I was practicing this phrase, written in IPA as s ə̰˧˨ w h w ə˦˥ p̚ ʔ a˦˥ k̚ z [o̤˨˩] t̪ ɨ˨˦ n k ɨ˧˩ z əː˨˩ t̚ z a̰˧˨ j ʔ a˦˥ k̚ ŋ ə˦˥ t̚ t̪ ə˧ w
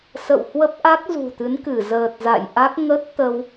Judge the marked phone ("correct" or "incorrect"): incorrect